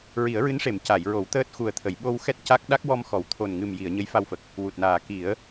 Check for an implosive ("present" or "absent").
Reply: present